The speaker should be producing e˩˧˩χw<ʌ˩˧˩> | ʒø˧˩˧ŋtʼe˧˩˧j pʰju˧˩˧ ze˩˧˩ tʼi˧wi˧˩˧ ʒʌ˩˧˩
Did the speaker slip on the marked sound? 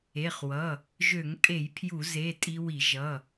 no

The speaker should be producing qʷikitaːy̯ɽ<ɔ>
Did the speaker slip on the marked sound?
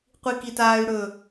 yes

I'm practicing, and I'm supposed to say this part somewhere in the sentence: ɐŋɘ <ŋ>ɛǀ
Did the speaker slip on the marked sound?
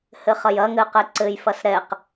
yes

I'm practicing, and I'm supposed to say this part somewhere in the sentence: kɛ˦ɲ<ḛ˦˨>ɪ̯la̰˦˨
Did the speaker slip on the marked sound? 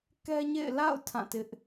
no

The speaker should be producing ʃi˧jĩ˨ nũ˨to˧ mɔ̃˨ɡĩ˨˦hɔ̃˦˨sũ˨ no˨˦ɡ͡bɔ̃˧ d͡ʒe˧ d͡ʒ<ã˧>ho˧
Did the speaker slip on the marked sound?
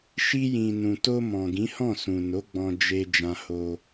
no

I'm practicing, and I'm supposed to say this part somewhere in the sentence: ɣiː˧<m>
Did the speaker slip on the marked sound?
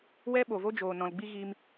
no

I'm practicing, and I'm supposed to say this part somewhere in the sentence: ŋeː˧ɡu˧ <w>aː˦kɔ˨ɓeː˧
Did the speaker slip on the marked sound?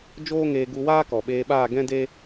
no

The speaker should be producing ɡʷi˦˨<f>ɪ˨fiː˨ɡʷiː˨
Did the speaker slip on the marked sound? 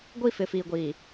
no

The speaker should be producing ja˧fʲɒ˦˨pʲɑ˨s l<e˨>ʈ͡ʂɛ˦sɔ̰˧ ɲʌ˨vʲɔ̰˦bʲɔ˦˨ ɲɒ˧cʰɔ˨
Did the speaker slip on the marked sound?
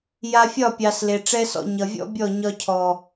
no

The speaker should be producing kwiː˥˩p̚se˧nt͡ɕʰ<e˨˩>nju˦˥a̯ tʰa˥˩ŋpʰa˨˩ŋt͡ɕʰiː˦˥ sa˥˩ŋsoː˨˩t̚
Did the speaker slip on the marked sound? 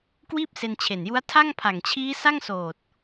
no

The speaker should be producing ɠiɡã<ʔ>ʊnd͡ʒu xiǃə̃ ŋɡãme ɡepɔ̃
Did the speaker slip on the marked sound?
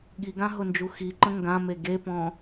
yes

